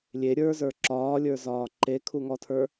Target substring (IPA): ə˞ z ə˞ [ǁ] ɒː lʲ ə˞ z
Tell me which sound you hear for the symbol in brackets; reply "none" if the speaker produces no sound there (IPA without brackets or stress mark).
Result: ǁ